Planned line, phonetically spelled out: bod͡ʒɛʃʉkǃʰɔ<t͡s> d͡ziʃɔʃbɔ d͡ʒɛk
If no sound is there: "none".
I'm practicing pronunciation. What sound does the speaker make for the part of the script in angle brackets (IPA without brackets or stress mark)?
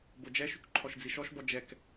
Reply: ʃ